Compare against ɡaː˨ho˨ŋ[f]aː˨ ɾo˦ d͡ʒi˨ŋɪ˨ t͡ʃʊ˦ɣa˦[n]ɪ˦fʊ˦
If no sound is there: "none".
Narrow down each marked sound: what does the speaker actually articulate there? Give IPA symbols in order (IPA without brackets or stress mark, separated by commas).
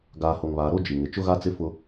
β, t͡s